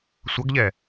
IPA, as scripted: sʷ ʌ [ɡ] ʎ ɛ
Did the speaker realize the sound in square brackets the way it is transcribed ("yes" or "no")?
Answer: yes